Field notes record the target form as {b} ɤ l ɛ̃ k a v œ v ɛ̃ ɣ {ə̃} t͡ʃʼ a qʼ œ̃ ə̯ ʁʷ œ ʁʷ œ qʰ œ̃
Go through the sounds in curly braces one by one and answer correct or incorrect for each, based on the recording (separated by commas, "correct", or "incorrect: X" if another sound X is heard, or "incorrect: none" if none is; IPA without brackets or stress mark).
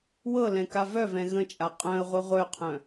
incorrect: w, correct